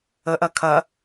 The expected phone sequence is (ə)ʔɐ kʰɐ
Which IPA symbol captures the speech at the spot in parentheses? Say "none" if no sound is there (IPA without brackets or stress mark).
ə